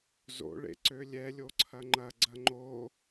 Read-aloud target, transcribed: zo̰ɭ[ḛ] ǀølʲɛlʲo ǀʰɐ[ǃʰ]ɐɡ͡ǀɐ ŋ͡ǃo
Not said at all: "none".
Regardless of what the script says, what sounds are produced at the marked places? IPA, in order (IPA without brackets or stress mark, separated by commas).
ḛ, ŋ͡ǃ